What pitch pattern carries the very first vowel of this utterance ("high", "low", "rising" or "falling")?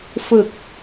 low